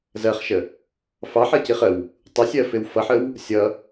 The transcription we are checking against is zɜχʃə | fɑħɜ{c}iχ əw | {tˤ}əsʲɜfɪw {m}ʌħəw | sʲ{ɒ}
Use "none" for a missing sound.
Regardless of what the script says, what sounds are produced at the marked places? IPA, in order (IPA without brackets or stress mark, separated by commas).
c, tˤ, f, ʌ